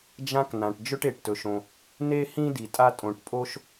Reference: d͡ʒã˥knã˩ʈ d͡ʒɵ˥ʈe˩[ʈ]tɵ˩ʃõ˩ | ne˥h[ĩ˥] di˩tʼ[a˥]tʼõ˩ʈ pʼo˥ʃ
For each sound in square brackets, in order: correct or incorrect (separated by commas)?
correct, correct, correct